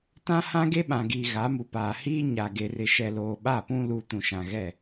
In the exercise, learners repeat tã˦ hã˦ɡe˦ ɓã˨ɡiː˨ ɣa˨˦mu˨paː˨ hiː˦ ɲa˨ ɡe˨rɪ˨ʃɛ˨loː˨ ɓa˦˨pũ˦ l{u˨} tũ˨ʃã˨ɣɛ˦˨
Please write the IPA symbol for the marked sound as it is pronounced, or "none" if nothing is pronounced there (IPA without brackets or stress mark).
u˨